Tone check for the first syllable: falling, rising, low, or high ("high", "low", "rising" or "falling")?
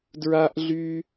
high